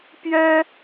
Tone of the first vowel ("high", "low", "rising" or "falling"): high